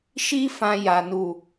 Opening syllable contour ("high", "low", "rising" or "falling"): high